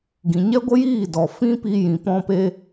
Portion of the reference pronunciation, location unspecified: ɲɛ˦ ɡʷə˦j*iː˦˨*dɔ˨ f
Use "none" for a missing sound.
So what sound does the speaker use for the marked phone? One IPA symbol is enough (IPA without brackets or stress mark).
iː˦˨